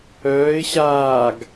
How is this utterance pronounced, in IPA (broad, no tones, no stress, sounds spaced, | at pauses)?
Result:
œː ɪ̯ ɕ aː ɡ